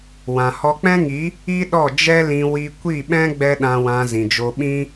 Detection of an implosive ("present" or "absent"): present